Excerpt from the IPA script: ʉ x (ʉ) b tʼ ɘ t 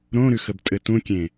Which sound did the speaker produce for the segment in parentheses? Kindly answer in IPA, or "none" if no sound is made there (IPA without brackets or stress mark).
ə